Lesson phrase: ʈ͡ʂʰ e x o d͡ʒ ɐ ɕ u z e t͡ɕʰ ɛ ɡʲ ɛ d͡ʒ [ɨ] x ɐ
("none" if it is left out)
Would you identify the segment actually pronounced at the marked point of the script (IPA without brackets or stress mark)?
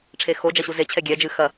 ɨ